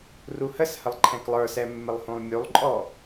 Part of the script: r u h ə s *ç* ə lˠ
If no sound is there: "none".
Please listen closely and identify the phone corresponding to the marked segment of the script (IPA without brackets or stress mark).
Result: h